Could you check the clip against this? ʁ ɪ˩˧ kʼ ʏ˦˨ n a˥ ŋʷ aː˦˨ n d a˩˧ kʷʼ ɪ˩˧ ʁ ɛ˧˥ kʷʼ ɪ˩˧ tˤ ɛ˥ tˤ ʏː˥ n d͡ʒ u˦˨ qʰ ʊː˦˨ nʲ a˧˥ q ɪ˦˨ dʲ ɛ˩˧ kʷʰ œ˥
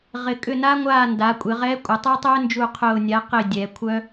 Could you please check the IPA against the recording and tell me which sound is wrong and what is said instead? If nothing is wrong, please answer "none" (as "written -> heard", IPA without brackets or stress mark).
none